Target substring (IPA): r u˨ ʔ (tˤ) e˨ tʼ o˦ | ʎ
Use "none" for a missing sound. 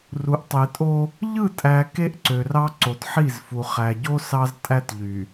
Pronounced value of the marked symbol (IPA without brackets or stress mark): tˤ